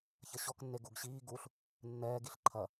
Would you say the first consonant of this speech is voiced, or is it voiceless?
voiceless